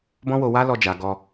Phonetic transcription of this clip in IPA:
b ɔ̃˦ w o˧ w a˦ l ɔ˧ d͡ʒ a˨ ɡ ɔ˧

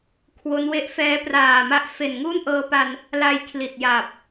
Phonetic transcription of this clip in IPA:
kʰ w o˦˥ n w e˥˩ ʔ f ɛː˦˥ p r aː˨˩ m a˦˥ ʔ f e˨˩ n ŋ uː˥˩ n ʔ ɤː˧ p a˧ n | l a˧ j kʰ l i˨˩ t̚ j a˨˩ p̚

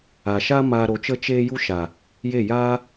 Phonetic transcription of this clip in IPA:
a˨ ʃ a˦ m a˧ ɾ o˨˦ t͡ʃ ə˦ t͡ʃ eː˦ j u˦ ʃ a˨ | j e˦˨ j aː˦

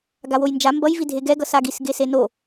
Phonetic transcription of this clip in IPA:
ɡ a w o j n d͡ʒ a m b ʌ j v i dʱ e ɡ ɛ ɡ ʌ s a ɡ i s ɡ e s e n o

